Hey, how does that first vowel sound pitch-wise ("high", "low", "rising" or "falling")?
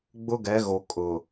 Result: high